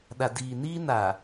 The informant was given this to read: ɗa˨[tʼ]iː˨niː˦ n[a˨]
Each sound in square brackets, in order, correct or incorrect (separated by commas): incorrect, correct